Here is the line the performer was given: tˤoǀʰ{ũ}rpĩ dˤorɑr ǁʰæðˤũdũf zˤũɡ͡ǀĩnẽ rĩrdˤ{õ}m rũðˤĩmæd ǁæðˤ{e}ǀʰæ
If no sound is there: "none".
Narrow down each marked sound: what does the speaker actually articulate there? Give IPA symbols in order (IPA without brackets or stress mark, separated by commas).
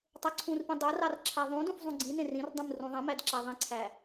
ũ, ũ, ẽ